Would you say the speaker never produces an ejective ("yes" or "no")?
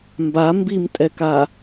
no